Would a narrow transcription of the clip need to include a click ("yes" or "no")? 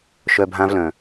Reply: no